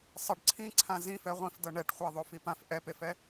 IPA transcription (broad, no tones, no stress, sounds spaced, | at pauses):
sˤ ə ɖ ǀʰ ĩ ǀʰ ã z ĩ f ɛ ʁʷ ĩ f d ɤ ɳ ɛ ʈ χʷ a ðˤ o f i p ã f ʔ ɛ p e f ɛ